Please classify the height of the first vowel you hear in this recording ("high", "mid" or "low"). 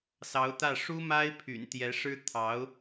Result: low